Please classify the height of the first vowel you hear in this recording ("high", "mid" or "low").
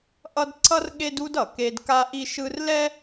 mid